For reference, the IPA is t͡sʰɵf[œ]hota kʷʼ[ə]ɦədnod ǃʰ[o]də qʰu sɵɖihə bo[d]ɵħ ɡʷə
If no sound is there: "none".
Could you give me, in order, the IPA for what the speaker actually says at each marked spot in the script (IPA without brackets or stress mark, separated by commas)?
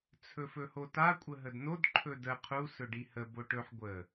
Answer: ɵ, ə, ɵ, ʈ